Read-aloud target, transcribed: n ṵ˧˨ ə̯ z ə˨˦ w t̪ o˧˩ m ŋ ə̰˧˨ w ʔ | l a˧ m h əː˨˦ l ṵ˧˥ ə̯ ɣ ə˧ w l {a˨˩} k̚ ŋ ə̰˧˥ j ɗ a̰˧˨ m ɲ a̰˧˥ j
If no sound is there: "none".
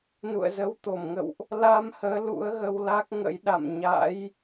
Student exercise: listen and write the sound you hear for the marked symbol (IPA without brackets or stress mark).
a˦˥